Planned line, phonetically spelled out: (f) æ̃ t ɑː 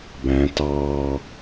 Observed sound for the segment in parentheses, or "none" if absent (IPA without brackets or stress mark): b